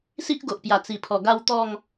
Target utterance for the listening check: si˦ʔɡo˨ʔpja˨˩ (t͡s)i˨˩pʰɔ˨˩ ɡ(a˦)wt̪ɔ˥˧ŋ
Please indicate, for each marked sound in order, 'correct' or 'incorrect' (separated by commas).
correct, incorrect